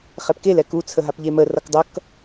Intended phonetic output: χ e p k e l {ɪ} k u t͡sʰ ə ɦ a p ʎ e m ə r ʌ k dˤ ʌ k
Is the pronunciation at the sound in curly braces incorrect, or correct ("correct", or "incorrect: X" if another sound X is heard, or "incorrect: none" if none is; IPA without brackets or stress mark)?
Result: incorrect: ɛ